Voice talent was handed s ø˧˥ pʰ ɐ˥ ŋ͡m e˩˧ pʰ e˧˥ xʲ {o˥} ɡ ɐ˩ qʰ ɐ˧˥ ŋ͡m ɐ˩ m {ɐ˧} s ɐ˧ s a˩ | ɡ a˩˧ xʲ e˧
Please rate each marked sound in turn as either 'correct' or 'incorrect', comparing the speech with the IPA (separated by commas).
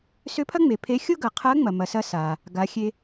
correct, incorrect